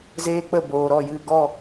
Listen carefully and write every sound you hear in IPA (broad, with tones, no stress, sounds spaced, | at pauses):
z eː˦ k͡p ə˦˨ b oː˨ ɾ ɔ˦˨ j ɨ˦˨ ɡ ɔ˦˨